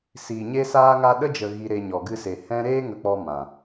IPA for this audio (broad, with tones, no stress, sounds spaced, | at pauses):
s iː˨ ɲ e˦ s aː˦ ŋ a˦ ɗ ə˦ d͡ʒ ə˨ ɣ i˧ ɾ e˧ ɲ ɔ˨ ɡ ɨ˧ s e˨ h ɛ̃˦ ɾ eː˦ ŋ ə˧ k͡p ɔ˧ m ã˨